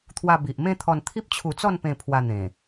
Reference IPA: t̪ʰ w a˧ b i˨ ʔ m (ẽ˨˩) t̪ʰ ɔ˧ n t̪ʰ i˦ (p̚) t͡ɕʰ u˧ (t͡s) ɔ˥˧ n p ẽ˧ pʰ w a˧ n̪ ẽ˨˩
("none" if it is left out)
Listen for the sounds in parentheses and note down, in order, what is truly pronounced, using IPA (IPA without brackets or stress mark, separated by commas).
ẽ˥˧, p̚, t͡s